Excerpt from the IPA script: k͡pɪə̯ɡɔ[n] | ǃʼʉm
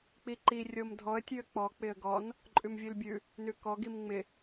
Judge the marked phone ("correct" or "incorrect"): correct